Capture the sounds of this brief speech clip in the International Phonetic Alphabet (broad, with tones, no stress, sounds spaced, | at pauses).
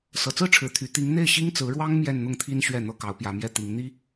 s ɤ˨˩ t͡s ɹ̩˥˩ ʈ͡ʂʰ ɻ̩˨˩ t̪ʰ y˧˥ t̪ i˧˥ ŋ n̪ e˥˩ ɪ̯ ɕ i˥ ŋ t͡s ɹ̩˧˥ ɻ w ɑ˥ ŋ m j ɛ˥˧ n n̪ ʊ˥˩ ŋ t̪ʰ i˥ n ɕ ɥ ɛ˥˩ n̪ ɤ˥ k ɑ˧˥ ʊ̯ p j ä˧˥ m j ɛ˥˩ t̪ i˧˥ ŋ n̪ i˥